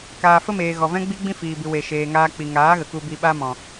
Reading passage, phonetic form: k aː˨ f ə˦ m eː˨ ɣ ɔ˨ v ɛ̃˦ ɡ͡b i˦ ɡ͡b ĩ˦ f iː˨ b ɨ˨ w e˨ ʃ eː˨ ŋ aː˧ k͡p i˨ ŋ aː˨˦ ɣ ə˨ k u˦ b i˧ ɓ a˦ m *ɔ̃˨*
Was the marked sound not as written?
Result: no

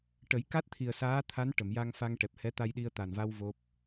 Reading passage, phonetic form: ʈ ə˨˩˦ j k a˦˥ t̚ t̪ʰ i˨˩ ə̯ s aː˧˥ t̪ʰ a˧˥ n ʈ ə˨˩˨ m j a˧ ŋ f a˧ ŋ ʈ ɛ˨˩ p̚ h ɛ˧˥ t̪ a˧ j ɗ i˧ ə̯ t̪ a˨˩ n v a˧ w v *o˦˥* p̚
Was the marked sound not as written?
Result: no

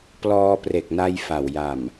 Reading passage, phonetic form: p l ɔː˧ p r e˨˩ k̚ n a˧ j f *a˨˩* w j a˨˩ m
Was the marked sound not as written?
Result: no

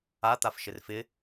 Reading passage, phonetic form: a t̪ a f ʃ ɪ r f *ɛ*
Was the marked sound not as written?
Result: yes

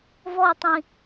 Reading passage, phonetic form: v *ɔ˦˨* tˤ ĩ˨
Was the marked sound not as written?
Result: no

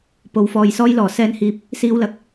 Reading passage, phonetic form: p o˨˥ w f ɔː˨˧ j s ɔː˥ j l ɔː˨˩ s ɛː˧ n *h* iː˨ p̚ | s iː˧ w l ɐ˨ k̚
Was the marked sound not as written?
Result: no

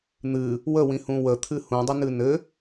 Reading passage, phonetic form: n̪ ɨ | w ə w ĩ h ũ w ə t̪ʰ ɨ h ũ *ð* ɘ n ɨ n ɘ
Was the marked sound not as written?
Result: yes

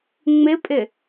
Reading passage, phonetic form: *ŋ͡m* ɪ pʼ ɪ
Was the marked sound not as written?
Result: no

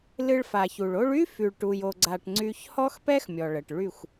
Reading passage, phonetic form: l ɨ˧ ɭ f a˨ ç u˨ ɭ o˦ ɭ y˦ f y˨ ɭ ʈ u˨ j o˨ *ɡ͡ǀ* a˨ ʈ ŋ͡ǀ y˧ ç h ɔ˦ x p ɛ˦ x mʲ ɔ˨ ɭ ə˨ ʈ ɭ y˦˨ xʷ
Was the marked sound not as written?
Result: no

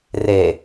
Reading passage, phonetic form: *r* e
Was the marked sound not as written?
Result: no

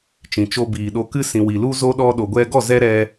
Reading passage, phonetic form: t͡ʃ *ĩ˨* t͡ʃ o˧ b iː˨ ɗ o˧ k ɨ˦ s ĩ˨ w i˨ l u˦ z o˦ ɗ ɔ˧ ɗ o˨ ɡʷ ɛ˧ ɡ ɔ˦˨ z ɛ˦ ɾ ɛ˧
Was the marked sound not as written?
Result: no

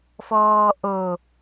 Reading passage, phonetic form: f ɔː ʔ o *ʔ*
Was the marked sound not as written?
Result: yes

